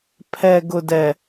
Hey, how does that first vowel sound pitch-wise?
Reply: low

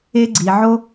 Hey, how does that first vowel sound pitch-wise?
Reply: high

